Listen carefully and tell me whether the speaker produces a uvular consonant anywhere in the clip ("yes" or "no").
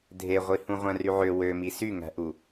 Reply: yes